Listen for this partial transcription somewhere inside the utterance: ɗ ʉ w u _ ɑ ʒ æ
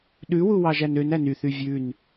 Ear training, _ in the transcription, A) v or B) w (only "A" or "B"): B